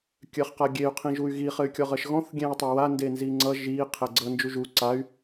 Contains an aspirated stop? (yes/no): yes